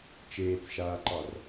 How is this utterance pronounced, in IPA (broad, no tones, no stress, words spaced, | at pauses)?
t͡ʃeːt͡sʃaːǃɑr